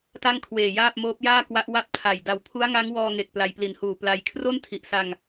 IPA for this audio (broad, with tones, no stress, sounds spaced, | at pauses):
t a˥˩ ŋ kʰ w eː˨˩ j aː˥˩ p̚ m oː˦˥ p̚ j aː˥˩ k w a˦˥ ʔ w a˥˩ p̚ tʰ a˨˩ j d a˨˩ w pʰ u˦˥ a̯ ŋ a˦˥ ŋ w ɔː˧ ŋ e˨˩ k̚ p l a˧ j p l i˨˩ n h uː˨˩ p l a˧ j kʰ r o˥˩ n tʰ i˨˩ ʔ s a˧ ŋ